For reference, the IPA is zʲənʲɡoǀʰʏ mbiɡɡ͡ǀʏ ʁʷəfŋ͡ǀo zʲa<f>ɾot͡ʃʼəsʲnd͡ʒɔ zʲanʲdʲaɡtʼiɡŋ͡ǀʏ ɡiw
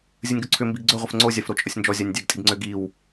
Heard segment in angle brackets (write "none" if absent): f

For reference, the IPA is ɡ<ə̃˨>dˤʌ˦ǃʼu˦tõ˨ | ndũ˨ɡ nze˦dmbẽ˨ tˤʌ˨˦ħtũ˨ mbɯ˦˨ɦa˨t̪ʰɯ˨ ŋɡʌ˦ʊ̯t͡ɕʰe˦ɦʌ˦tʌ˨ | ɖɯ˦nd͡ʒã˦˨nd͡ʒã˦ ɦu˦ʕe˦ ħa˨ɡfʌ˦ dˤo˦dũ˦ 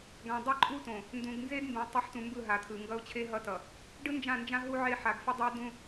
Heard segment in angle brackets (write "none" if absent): ã˨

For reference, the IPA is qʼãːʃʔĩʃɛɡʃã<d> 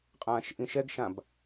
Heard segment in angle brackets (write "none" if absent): b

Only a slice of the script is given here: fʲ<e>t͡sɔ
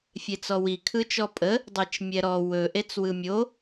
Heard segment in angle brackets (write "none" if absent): e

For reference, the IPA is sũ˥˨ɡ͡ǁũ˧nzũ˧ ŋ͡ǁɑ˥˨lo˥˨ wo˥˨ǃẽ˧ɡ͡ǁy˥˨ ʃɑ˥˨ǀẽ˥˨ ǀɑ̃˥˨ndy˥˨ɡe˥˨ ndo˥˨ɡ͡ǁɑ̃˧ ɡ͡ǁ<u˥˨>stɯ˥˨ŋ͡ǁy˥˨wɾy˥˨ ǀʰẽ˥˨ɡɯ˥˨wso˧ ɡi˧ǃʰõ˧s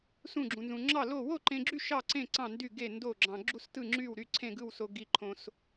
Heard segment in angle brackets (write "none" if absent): u˥˨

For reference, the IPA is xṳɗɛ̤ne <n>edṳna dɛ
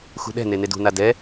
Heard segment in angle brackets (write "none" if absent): n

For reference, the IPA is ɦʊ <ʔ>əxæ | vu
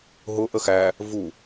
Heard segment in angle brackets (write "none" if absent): ʔ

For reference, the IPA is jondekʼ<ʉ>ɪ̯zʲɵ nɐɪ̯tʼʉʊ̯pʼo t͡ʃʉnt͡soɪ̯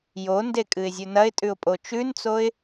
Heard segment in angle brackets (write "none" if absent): ɨ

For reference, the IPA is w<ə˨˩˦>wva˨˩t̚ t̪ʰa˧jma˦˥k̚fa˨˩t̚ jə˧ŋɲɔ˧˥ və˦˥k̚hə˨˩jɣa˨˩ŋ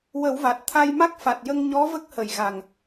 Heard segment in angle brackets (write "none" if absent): ə˨˩˦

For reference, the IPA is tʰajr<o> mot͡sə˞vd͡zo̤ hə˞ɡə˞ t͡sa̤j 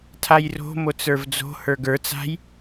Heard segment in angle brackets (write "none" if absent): o̤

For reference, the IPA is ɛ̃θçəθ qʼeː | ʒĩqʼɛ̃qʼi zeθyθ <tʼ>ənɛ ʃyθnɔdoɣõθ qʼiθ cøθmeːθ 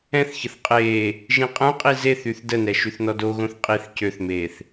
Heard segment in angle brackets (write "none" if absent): d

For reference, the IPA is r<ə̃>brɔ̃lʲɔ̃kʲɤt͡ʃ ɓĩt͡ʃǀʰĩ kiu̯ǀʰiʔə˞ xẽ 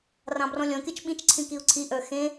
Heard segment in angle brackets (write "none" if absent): ɑ̃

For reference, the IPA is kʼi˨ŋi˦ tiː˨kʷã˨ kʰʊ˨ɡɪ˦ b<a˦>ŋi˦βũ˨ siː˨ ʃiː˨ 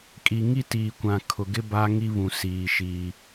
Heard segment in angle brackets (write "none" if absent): a˦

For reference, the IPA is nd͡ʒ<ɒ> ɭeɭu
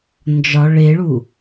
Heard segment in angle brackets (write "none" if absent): ɒ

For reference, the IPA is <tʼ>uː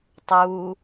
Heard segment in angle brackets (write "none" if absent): tˤ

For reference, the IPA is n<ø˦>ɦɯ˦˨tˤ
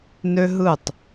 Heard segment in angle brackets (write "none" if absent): ø˦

